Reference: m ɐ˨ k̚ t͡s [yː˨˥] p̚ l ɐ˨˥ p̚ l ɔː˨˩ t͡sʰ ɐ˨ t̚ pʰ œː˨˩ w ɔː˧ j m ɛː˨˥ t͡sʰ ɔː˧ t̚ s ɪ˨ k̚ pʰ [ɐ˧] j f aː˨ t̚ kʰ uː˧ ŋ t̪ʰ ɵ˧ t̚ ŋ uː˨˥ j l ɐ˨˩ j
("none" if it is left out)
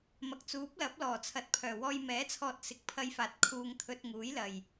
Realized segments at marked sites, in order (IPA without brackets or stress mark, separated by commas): uː˨˥, ɐ˧